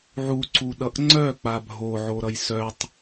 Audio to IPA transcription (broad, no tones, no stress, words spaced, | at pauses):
ʕuǀuɗʌʔ ŋ͡ǀœk͡pa bʱoʕoɾʌj sœtˤ